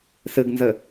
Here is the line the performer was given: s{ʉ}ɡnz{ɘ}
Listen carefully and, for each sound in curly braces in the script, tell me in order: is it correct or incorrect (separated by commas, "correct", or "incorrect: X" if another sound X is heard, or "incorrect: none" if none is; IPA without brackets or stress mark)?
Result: incorrect: ɨ, correct